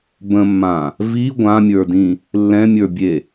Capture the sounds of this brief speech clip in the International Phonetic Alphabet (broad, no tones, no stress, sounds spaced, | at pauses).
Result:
b ə̃ mː ã | v i ɡʷ ã mʲ ə˞ d ĩ | lː ɛ̃ mʲ ə˞ bʲ e